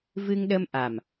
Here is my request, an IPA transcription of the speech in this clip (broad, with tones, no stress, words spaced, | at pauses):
vɨ˧ŋɗə˧m ʔa˨˩m